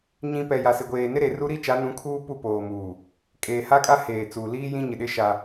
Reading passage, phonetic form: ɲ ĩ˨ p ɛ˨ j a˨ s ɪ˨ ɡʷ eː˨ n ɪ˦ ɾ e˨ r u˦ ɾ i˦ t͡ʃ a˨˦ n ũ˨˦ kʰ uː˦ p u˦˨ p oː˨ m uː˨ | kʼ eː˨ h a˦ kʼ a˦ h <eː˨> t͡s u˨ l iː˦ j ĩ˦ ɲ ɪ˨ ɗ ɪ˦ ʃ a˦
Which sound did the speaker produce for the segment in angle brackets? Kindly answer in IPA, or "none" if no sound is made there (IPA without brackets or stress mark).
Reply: eː˨